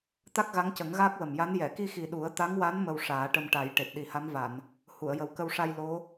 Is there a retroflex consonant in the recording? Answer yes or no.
yes